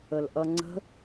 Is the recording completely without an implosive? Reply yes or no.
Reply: yes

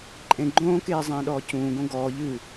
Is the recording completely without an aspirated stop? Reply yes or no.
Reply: yes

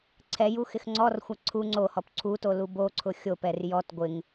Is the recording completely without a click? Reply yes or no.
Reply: no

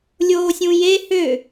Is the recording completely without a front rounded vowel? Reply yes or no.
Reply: no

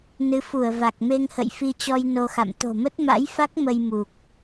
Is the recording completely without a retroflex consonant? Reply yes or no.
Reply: yes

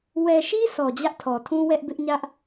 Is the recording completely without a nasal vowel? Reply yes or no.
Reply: no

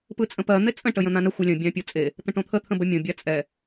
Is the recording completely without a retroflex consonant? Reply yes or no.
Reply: no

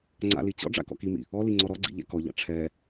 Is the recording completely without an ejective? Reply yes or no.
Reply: yes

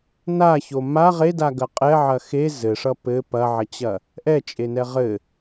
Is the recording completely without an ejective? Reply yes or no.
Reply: no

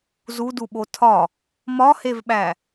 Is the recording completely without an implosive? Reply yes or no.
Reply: no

